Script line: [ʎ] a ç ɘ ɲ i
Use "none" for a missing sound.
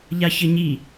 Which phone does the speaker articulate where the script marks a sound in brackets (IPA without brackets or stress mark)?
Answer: ʎ